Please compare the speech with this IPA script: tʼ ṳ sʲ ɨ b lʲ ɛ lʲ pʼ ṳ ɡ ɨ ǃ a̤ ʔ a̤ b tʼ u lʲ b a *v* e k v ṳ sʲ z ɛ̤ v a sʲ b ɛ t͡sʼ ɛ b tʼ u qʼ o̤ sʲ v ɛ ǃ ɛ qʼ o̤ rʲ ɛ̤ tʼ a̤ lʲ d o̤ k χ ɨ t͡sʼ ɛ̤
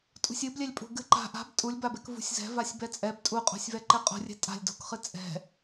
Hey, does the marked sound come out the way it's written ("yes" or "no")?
no